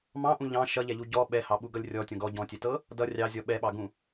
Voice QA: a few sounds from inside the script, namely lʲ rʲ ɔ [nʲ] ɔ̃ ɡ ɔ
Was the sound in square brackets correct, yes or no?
no